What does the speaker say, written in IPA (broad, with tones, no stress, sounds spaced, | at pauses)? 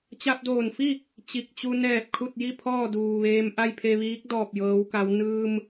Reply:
t͡ɕ a˧ p̚ d oː˧˩ n f i˥˨ | t͡ɕ i˧˩ k̚ t͡ɕ u˧ n ɛː˧˩ p̚ kʰ u˥˨ t̚ j i˥˨ pʰ ɔː˥˨ d uː˩ ʋ eː˧ m ʔ a˥˨ j pʰ e˧ ʋ iː˧˥ k̚ d ɔː˧˩ p̚ j ɤː˩˧ w k a˩˧ w n ɯː˧ m